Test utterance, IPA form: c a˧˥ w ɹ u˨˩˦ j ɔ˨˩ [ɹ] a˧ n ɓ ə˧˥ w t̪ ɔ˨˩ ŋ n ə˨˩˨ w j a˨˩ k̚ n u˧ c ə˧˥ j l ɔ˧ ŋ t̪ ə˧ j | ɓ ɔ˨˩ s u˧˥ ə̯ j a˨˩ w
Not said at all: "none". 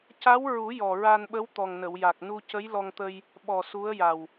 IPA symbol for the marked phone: ɹ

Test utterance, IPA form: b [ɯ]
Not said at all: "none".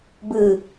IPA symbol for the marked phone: ɯ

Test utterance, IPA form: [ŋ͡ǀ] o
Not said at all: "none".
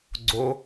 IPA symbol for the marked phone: ɡ͡ǀ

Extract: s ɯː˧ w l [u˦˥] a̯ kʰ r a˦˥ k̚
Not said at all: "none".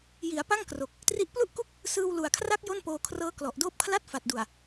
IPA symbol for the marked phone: u˨˩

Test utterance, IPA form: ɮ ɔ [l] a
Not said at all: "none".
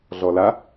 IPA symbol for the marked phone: l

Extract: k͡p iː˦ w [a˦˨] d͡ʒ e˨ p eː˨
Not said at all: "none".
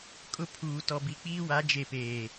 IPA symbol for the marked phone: a˨˦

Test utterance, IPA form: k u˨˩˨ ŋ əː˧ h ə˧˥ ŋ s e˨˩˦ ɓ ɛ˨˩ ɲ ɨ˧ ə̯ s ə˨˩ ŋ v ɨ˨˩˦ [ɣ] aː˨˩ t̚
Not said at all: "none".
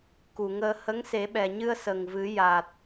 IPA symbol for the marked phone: j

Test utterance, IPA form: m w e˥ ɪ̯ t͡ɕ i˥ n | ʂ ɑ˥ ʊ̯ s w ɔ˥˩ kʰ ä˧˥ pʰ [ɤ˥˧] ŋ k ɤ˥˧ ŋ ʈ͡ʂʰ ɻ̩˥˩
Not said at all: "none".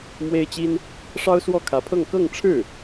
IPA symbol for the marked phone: ɤ˥˧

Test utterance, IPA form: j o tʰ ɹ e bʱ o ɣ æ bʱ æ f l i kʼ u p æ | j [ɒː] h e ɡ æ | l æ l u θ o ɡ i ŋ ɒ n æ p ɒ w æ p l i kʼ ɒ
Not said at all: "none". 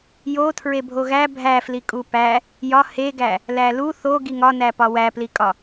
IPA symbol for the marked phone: ɒ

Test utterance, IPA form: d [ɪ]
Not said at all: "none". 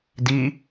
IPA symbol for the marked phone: i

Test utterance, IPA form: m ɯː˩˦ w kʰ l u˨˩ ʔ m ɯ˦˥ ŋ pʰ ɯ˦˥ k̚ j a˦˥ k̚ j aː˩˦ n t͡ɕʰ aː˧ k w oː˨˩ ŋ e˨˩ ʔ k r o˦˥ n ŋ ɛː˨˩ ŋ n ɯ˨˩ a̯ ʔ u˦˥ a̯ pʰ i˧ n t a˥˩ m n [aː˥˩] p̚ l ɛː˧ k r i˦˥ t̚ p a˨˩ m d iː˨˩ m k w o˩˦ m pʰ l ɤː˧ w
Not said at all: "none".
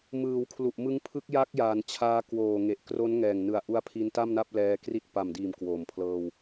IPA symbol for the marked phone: a˥˩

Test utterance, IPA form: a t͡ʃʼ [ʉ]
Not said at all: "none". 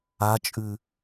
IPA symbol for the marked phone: ʉ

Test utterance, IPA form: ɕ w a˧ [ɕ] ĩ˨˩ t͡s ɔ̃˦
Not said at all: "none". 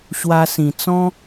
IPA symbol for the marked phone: s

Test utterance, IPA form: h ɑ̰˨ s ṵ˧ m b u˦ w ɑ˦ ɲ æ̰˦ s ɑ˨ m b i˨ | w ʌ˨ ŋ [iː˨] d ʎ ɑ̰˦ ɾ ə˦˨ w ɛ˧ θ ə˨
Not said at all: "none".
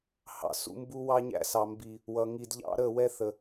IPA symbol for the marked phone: i˨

